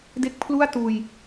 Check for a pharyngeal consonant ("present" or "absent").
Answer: absent